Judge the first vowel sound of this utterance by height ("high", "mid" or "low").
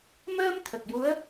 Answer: mid